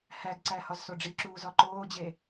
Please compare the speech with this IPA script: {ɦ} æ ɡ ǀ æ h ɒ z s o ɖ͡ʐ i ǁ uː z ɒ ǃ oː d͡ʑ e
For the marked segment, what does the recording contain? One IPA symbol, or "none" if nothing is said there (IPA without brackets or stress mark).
h